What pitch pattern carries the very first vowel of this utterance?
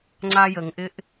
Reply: high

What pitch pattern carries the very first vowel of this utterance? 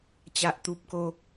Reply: high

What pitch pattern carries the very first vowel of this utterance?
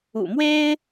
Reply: low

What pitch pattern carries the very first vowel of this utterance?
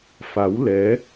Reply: rising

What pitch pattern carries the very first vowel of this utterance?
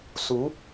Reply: rising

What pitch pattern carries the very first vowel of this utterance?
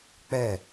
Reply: falling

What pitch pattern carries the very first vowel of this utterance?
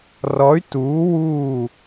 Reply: rising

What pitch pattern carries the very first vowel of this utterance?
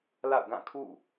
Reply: falling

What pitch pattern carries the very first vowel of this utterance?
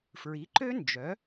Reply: rising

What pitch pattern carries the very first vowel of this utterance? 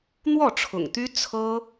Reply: falling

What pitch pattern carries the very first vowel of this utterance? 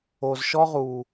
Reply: low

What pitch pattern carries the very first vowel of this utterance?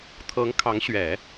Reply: rising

